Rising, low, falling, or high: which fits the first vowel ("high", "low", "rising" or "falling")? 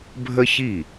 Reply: high